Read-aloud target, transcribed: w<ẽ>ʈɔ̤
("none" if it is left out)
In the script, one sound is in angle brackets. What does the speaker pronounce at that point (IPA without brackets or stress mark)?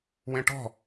ẽ